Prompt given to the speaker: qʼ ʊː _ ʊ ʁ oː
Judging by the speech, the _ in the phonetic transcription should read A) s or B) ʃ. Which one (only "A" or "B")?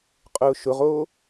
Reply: B